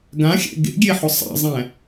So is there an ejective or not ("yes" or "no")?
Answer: no